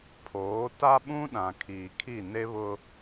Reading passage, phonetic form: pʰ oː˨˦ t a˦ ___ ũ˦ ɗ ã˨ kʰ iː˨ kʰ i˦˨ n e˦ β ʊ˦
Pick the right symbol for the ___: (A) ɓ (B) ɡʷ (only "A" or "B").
A